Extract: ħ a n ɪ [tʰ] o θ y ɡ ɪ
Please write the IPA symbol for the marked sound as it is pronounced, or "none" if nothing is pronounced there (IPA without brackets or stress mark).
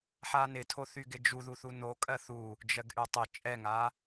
tʰ